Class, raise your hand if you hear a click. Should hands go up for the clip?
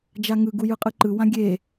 yes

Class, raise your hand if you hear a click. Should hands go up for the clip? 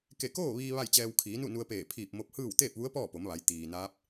no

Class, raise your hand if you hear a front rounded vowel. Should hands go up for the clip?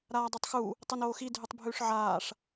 no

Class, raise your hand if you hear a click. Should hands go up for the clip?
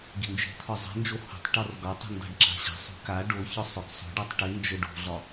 yes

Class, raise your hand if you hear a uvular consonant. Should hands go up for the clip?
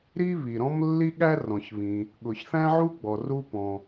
no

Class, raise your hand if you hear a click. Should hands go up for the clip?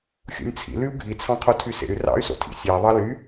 no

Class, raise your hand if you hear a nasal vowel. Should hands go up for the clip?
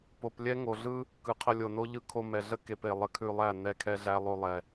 no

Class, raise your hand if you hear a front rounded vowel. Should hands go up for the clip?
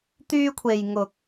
yes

